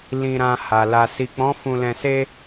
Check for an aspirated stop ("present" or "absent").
absent